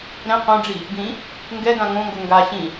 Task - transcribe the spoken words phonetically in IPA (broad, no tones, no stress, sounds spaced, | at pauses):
ɾ ɛ̃ q õ ɖ͡ʐ i | ɡ ĩ | ŋ ɡ ɛ ɡ ã ŋ õ ŋ ɡ o ŋ ɡ a ɕ ĩ